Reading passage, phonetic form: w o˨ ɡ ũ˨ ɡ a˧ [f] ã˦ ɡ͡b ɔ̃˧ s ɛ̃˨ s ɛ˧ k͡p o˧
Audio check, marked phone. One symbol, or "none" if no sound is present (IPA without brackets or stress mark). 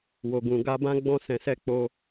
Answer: b